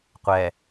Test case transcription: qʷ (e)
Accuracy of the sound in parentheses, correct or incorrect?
incorrect